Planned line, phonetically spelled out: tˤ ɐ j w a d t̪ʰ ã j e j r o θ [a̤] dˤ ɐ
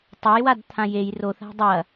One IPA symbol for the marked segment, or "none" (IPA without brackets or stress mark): a̤